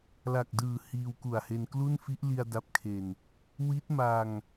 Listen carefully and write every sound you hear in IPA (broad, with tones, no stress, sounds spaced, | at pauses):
l a˨˩ k̚ d ɯː˨˩ h iː˧ w k u˨˩ a̯ h e˧ n k l u˥˩ n f i˦˥ ʔ l i˧ a̯ d a˦˥ p̚ kʰ e˧ n | w i˦˥ t̚ m a˧ ŋ